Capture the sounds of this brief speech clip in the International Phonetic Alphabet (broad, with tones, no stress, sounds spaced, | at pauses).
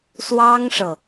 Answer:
s w ɑ˥ ŋ ʂ ɤ˨